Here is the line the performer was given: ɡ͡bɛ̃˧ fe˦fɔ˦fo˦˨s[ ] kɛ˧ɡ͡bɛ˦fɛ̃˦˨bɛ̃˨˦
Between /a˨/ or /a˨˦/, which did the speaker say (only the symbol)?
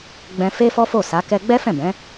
a˨˦